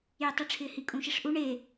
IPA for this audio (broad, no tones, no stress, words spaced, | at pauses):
jɪtˤɛʈ͡ʂʰɪːhi kʼũʃiʂʔu ɳe